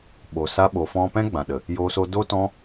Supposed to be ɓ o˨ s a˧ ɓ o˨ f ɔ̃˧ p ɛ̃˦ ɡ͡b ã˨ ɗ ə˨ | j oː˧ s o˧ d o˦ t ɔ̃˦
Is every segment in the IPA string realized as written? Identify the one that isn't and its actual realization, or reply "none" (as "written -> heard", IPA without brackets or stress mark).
none